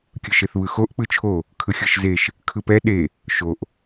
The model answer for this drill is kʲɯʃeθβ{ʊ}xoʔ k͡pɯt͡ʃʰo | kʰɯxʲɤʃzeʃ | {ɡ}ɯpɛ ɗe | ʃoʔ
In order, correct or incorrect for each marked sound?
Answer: incorrect, incorrect

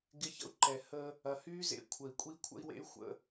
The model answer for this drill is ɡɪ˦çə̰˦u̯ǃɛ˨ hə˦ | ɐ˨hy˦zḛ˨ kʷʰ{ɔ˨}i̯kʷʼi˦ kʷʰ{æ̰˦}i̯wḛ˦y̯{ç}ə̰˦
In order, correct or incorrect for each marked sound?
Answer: incorrect, incorrect, incorrect

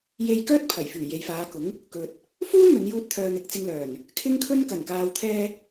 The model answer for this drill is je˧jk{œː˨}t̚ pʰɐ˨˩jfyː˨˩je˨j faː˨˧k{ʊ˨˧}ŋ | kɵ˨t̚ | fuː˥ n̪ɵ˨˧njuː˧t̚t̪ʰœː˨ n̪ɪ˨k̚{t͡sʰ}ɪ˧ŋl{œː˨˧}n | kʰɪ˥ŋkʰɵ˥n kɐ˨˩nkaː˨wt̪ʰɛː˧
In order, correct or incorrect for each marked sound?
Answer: incorrect, incorrect, incorrect, incorrect

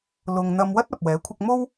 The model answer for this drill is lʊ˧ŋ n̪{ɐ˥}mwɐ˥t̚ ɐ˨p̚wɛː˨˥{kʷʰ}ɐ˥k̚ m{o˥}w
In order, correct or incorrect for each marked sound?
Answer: incorrect, correct, correct

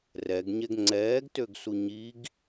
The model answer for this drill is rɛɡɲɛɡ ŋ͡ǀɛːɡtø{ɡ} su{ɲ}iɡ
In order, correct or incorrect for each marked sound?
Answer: correct, correct

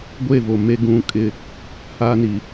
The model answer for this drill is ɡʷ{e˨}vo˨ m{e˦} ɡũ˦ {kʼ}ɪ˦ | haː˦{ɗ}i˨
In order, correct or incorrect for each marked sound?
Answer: incorrect, correct, correct, incorrect

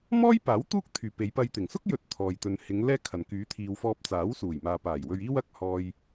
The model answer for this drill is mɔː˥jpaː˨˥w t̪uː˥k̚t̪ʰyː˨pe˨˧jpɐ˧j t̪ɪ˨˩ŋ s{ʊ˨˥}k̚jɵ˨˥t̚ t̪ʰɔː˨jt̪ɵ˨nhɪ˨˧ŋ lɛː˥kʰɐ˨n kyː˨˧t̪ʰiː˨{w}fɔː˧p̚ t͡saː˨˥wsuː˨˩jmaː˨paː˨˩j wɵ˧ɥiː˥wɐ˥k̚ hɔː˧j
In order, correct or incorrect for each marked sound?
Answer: incorrect, correct

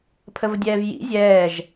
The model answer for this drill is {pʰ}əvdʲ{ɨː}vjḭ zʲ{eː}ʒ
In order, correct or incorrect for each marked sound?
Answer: correct, incorrect, incorrect

